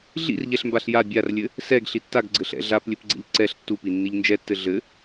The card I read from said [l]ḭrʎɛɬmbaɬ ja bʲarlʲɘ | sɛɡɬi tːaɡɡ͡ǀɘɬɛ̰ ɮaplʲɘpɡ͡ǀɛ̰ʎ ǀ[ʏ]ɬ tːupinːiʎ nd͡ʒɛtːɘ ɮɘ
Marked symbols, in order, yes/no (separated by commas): no, no